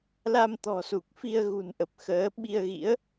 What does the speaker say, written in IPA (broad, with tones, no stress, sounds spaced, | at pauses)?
l a˧ m t̪ ɔ̤˨˩ s u˨˩ k̚ f i˧ ə̯ ɣ ṳ˨˩ n ʔ ə˨˩ p̚ x əː˨˦ ɓ i˧ ə̯ ɣ ḭ˧˥ ə̯